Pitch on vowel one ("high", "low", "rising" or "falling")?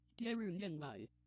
high